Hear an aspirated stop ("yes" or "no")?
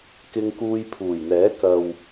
yes